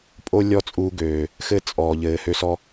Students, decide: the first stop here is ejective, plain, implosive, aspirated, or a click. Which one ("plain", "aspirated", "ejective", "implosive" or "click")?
ejective